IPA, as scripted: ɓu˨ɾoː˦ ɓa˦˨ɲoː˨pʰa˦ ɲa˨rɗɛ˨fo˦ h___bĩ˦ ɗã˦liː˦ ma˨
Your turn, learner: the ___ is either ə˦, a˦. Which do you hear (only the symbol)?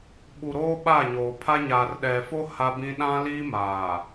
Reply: a˦